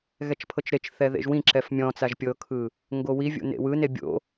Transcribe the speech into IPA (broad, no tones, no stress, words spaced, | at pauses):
ɣɛt͡ʃpʰɤt͡ʃɾet͡ʃθɛ ðḛʒwĩǁɛf mʲɔ̃t͡saʒ pʲɤkʰɯ | ŋɡowivʲo̰ nḛwɯne bʲo̰